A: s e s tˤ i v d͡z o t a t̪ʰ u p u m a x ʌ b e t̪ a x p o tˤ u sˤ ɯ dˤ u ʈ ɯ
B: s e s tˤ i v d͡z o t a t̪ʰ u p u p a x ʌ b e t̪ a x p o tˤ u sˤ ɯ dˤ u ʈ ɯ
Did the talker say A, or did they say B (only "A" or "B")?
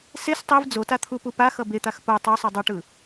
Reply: B